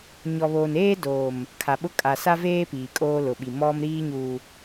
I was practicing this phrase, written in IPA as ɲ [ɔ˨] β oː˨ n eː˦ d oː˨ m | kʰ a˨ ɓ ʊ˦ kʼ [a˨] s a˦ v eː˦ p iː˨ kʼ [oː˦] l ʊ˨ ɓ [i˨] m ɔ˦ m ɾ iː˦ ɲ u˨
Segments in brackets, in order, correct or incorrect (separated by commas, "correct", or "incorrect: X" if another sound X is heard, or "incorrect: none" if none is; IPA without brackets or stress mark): correct, correct, correct, correct